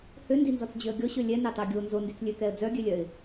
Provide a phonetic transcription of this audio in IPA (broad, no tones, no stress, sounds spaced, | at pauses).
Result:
h ø n d i n z ɔ t͡s d͡ʑ ø ə̯ ɡʲ ɔ ɕ ø lʲ ɛ n ɑ t ɑ ɡʲ o n z o n d y t͡s lʲ ø k ɛ ə̯ d͡z œ ɡʲ ø lʲ œ ɪ̯